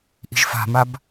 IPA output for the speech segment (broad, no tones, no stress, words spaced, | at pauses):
ʔi̤ʒfa̤mab